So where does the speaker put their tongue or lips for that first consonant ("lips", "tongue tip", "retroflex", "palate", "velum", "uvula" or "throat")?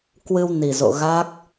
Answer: velum